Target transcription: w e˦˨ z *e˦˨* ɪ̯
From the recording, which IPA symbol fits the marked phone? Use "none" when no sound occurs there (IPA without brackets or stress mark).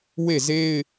e˦